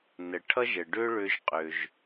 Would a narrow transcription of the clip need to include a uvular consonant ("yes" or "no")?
yes